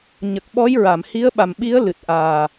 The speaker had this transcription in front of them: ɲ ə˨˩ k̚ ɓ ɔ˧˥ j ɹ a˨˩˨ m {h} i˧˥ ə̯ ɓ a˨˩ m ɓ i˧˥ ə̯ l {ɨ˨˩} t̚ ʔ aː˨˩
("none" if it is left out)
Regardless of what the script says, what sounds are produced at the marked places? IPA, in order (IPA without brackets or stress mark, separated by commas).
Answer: h, ɨ˨˩